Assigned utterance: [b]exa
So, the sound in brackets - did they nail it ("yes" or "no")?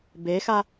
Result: yes